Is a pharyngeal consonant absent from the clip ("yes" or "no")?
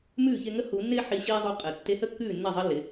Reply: no